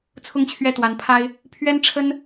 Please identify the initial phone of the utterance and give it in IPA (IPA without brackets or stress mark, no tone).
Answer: t͡sʰ